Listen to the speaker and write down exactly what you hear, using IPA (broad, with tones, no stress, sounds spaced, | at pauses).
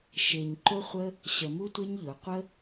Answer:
ʃ e˨ ɲ ǃ ʊ˦ χʷ ə˦ | ɕ ə˨ m u˧ tʷ e˦ ɲ ʎ ʊ˨˦ qʷ ə˦